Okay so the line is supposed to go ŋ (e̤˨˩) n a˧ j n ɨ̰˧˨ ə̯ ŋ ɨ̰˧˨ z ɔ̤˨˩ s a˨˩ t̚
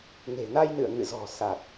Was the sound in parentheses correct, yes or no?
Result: yes